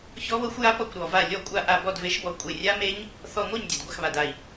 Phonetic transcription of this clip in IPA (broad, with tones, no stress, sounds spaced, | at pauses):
ç ɔ˦˥ β ɤ˦˥ xʷ j a˦˥ p ɔ˥˩ kʷ ɾ ɔ˧˩ v a˥˩ lʲ ɔ˥˩ kʷʼ a˥˩ ʔ a˥˩ b ɔ˥˩ d v e˨˥ ʃ b ɔ˧˩ kʷʼ e˧˩ rʲ a˦˥ m e˦˥ ɲ | θ ɔ˧˩ ŋʷ ɤ˥˩ ɲ dʲ ɤ˩ d ɡʷ a˥˩ x β a˩ d a˧˩ i̯